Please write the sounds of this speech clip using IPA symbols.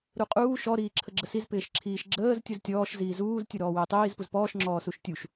ɾ u qʼ uː ʃ ɔ ɾ iː ǁʰ ə ɡ͡ǁ ə s i z p ɪː ʃ ǁʰ iː ʃ ɡ͡ǁ əː z tʲ u z tʲ ɔː ʃ z iː z uː z tʲ ɯ ɾ ɔː w ɪː tˤ iː z p u z p ɔː ʃ ŋ͡ǁ ɔː s u ʃ tʲ u ʃ

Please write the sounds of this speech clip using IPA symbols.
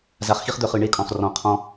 z a˨ χ x i˦ χ d̪ œ˦˨ χ ɯ˨ ɳ e˦ kʼ ɔ̃˨ χ r ɔ̃˨ qʰ ɔ̃˦

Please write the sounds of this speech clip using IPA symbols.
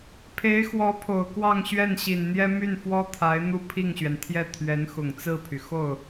pʰ e˧˥ ɪ̯ x w ɔ˧˥ pʰ o˨˩ ʊ̯ k w ɑ˥˧ ŋ ɕ ɥ ɛ˥˩ n ɕ i˨˩ n n̪ j ɛ˥ m y˥˩ n f w ɔ˥ t̪ʰ a˧˥ ɪ̯ n̪ u˥˧ pʰ i˥˩ ŋ ɕ ɥ ɛ˩ n t̪ʰ j ɛ˥˩ t̪ʰ ɥ ɛ˧˥ n x ʊ˨˩ ŋ t͡s ɹ̩˥˩ pʰ y˩ x o˥˩ ʊ̯

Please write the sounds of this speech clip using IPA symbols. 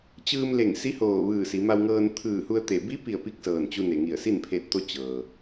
t͡ɕ ɯː˧ m l e˧˩ ŋ s i˧˥ h oː˧˩ ʋ ɯː˧˩ s i˩˧ m a˧ w ŋ ɤː˧ n t̪ʰ ɯː˧˩ h u˧ ə̯ t̪ e˧˩ b i˧˥ p i˧˩ ə̯ p i˥˨ k̚ s ɤː˧˩ n t͡ɕ u˧ n e˩ ŋ i˧˩ ə̯ s i˥˨ n pʰ e˧ t̚ t̪ o˧˥ t͡ɕ ɤː˩

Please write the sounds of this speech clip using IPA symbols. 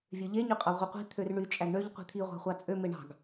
vʲ ø ʎ e ɲ y qʼ ɑ ʁʷ i qʷ i̤ t̪ʰ ø r ɳ y t͡ʃʼ æ ɡ ɳ ø ʎ qʷ i̤ t̪ʰ i ʁʷ ɑ̤ χʷ ɑ t͡sʼ ø m e ɳ ɑ̤ ɡ

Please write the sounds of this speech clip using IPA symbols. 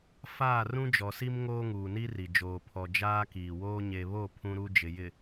f aː˦˨ r ũ˦ d͡ʒ ɔ˨ s i˦ m ŋ oː˦ ŋ uː˨ n i˦ r i˨ d͡ʒ oː˨ pʰ ɔ˨ d͡ʒ aː˦ k iː˨ w oː˦ ɲ e˨ β o˦˨ pʰ ũ˦ ɾ u˦ d͡ʒ ɪ˨ j ɪ˨

